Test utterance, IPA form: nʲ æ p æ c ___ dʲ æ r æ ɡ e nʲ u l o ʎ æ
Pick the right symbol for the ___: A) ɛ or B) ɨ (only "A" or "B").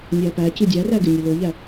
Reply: B